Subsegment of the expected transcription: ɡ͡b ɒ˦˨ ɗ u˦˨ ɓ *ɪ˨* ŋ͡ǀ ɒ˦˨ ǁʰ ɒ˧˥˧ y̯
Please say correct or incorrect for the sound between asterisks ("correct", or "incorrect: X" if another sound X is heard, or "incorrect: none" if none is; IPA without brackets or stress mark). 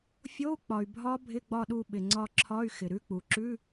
correct